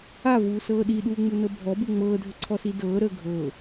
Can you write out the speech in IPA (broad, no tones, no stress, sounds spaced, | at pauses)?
a v uː s ɤː ɗ i ɗ uː ŋ͡m u n ɤ bʱ ɔ b u ŋ͡m ɤː dʱ ə ǀʰ ɔ s i d ɤː ɾ əː ɡʱ ɤ